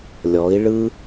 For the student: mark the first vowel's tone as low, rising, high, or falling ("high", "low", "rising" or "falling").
rising